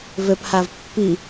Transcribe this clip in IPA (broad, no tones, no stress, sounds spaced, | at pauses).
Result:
v ø p h a v pː i